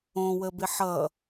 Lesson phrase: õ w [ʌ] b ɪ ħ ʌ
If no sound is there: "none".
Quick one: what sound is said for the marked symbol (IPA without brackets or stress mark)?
ə